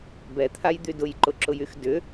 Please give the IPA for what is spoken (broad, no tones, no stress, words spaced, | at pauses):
bɛt̪ʰajd̪y dʊjǃʊǁʊjyx dʏ